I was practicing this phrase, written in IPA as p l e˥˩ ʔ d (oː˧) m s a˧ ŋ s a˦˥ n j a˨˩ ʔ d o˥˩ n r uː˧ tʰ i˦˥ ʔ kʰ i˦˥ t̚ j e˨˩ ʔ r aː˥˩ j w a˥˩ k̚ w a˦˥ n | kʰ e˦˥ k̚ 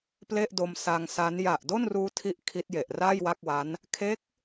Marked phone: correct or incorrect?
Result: incorrect